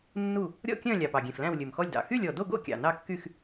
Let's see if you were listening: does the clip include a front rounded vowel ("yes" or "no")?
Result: yes